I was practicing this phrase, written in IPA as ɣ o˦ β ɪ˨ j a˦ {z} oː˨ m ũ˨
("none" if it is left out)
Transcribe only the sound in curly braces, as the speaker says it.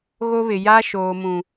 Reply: ʃ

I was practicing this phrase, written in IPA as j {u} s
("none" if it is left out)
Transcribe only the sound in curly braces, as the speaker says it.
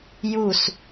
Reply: u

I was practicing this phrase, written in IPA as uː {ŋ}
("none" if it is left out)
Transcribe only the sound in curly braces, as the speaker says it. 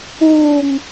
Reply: ŋ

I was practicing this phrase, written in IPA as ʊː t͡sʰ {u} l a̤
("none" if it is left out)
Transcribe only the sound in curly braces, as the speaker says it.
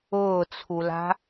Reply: u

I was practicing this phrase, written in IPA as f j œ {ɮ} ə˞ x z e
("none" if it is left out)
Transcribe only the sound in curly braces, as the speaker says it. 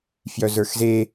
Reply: z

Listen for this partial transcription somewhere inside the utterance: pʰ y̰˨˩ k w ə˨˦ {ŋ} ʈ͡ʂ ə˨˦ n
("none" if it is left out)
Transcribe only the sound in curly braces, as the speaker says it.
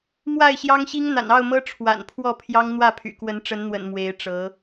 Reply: n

